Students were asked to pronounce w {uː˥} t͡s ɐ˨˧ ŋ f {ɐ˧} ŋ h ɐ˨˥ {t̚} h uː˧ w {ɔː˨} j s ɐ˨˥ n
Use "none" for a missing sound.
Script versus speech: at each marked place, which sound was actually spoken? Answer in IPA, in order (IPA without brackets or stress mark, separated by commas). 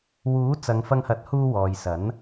uː˨˥, ɐ˧, t̚, ɔː˨